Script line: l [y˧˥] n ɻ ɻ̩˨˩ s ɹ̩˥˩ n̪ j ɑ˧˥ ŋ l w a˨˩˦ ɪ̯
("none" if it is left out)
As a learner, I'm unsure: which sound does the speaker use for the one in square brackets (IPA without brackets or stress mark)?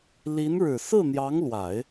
i˧˥